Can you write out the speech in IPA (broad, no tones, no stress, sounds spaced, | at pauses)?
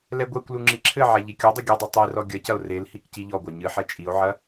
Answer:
l ɛ ɡʷ ɛ kʷ l u ŋ͡ǁ i ǁʰ ɘ ʕ a ʎ i kʲ o dˤ ɘ ɡʲ ɨ dˤ ɐ tˤ i r ɔ ɡʲ ɐ c ɐ o̯ r e l h i k c i ʎ ɔ ɡʷ a ɲ ɨ ħ ɛ t͡ʃʼ i o̯ ʕ ɐ